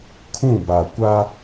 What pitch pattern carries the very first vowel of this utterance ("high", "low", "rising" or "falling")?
falling